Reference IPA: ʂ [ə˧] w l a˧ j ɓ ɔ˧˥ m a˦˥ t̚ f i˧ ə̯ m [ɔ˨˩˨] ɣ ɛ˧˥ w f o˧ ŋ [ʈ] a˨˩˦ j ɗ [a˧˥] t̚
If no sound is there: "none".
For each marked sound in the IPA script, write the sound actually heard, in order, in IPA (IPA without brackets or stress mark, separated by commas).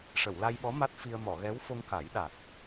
ə˨˩˨, ɔ˨˩˨, k, a˨˩